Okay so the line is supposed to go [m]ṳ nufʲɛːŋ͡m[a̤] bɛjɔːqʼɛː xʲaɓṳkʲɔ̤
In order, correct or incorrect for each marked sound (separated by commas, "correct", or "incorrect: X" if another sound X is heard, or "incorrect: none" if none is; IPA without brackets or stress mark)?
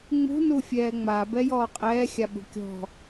incorrect: ŋ͡m, incorrect: a